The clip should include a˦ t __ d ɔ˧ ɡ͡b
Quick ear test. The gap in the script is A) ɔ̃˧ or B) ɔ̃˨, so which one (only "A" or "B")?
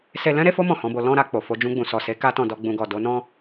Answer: A